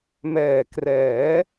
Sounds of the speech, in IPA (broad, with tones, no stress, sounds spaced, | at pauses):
m ɛː˨˩ k r ɛː˩˦